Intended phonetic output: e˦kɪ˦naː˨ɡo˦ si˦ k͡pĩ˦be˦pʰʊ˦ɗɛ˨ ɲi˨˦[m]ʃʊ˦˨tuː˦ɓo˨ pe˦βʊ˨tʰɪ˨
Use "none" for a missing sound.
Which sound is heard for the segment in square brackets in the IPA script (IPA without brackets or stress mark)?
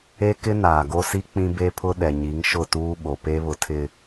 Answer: ŋ